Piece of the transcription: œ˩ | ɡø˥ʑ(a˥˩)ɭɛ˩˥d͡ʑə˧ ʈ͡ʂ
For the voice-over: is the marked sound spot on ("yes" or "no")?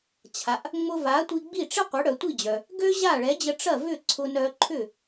yes